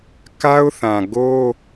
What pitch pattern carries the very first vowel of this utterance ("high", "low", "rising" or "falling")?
high